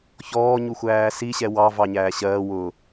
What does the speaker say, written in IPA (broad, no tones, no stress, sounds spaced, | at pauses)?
ç ɔː ɲ u xʷ æː s i ɕ ɛ w ɑ v ɑ ɲ æː ɕ ɜː w ʊ